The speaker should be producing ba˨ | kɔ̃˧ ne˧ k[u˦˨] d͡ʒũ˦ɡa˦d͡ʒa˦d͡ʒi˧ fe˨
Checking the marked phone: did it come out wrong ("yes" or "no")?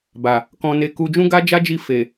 yes